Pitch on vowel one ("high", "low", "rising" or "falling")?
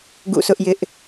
falling